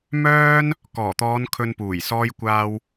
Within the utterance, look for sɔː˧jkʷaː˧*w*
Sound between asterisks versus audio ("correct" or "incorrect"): correct